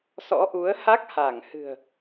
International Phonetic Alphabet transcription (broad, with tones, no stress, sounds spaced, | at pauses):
s ɔ̰˧˥ ʔ u˨˦ ə̯ h a˦˥ k̚ h a˧˩ ŋ h ɨ̤˨˩ ə̯